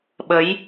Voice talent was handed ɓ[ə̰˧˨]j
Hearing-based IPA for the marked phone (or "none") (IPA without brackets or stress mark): ə˨˦